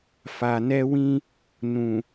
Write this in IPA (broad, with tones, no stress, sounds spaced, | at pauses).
f a˨ n ɛ˧ w ĩ˧ | n ũ˨